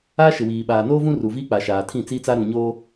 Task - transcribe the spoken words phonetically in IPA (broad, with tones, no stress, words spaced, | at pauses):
a˦ʃɪ˨wiː˨ ɓaː˨noː˦vũ˦ ru˨viː˦k͡paː˨ ʃaː˨tʰĩ˦˨t͡siː˦t͡sa˦ ɾũ˨ɲoː˦